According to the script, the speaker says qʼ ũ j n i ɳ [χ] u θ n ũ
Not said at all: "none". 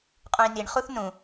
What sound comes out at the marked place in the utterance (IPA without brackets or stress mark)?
χ